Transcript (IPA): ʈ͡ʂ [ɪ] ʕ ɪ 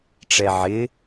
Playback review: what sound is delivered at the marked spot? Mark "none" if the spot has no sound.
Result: ɛ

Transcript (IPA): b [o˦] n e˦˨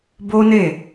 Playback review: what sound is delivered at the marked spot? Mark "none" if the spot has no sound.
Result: o˦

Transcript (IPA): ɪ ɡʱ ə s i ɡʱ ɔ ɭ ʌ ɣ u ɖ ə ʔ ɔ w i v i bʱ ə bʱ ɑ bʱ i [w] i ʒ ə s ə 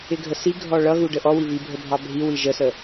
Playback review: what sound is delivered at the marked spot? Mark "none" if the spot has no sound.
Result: w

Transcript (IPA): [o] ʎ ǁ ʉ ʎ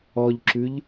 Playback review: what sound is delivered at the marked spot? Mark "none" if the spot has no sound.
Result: ɔ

